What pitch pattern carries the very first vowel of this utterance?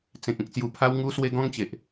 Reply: low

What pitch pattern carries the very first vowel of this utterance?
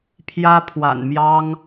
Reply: high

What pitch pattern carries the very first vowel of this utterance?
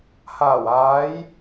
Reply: low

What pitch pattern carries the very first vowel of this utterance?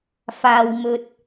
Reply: low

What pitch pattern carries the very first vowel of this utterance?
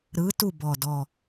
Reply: rising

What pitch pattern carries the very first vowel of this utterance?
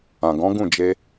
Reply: low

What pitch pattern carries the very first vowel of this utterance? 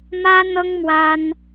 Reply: high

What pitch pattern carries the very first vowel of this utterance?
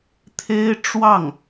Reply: high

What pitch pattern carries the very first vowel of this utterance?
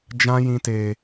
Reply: high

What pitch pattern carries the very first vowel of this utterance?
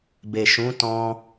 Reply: low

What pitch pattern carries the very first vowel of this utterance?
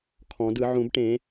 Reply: rising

